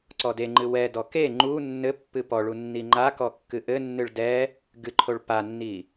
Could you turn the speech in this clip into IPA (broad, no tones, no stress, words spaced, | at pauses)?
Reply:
ǀɔdeŋ͡ǃɨ wɛdɔ ke ŋ͡ǃu nːɘ pːɨpɔɭu nːiŋ͡ǃakɔ kːɨʔɘnːɨɭ dɛ | ɡɨǃʰoɭ panːi